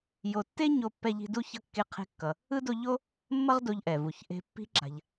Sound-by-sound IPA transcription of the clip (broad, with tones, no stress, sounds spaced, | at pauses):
j o˨ tː e˥ ɲ o˦ pː ɛ˦ ʎ i̤˦ d u˥ ç ʌ˥ kː e˦ qʰ e̤˦ kː ʌ˨ | ɯ˥ d o˦ ʎ o˥ | mː ʌ˦ ʁ d o˨ ʎ ʔ ɛ˩ v u˩ ç ʔ e̤˨ pː i̤˥ ǁ a̤˨ ʎ